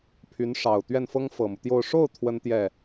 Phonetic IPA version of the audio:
pʰ y˧˥ n ʂ ɑ˨˩ ʊ̯ t̪ ɥ ɛ˥˩ n f ɤ˥ ŋ f ɤ˨˩ m u˦ t̪ j o˥˧ ʊ̯ ʂ o˥˩ ʊ̯ t̪ʰ w ə˥ n t̪ j ɛ˥˩

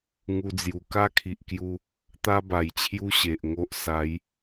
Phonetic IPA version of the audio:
ŋ u˧ d͡z j u˨˩ k a˥˧ kʰ i˨ ʔ k j u˧ | t̪ a˦ b a˨˩ j t͡ɕʰ j u˦ ɕ e˨ ʔ ŋ o˦ ʔ s a˨˦ j

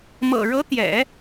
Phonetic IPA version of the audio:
m ɤ̰˨˩ ɻ ɤ˧˥ t̪ j ɛ̰˨˩˦

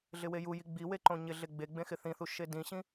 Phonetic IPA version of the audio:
ɮ ɪ w e j u j i ɡ͡b i w e ǃ õ ɲ ɪ ɮ e ɡ͡b e ɡ͡b ẽ x ɪ θ ĩ θ u ʃ e d ĩ ɕ ĩ

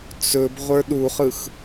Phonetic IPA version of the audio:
t͡s ɵ b ʁʷ ə˞ ɗ u χ ɯ x

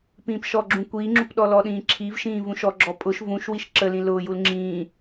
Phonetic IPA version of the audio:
p ĩː p ʃ ɔ ɡ͡ǁ ũ kʷ iː ŋ͡ǁ u p ɗ ɔ l ɔ ɗ ĩː ǁʰ i v ʃ ĩː v ũ ʃ ɔ ɡ͡ǁ ɔ pʼ ʊ ʃ v ũ ʃ w i ʃ ǁ ə l ĩ l ʊː j u l ŋ͡ǁ ĩː

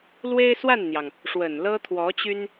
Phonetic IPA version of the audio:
l w e˥ ɪ̯ s w a˥˩ n n̪ j ɑ˩ ŋ | ʂ w ə˨˩ n l ɤ˥ t̪ʰ w ɔ˧˥ t͡ɕ y˥ n

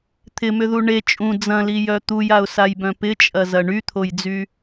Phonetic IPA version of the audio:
t̪ʰ ɪ m ʏ ð u ɳ e t͡ʃʼ ũ d͡z ɐ̃ l i j œ t̪ u j a ʊ̯ s a j b œ̃ p ɪ t͡ʃʼ ɐ z ɐ ɳ y t̪ʰ o j d͡z y

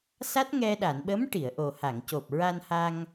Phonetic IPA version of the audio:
s a˦˥ t̚ ŋ ɛ˧ ɗ a˨˩˨ n ɓ ə˧˥ m ʈ i˨˩˨ ə̯ ʔ o˨˩ h a˨˩˨ ŋ c o˨˩ p̚ ɹ a˧ n h a˧ ŋ

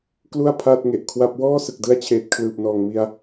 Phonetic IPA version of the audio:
k l u˥˩ a̯ pʰ aː˥˩ t̚ ŋ e˨˩ ʔ kʰ w a˦˥ p̚ w ɔː˥˩ s ɯ˨˩ k̚ d ɯ˦˥ a̯ t͡ɕʰ eː˨˩ t̚ kʰ l ɯː˨˩ p̚ n ɔː˨˩ ŋ m i˧ a̯

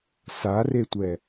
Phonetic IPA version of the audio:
s a r e tʷ ɛ

